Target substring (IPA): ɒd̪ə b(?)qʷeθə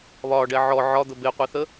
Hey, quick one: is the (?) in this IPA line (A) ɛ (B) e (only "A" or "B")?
B